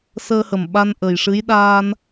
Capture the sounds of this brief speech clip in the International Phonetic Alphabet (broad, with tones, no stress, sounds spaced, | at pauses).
s əː˧ h ə˨˩ m ɓ a˧ n ʔ ə˨˩ j ʂ ɨ˧˥ j ɗ aː˧ n